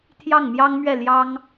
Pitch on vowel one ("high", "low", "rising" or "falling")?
falling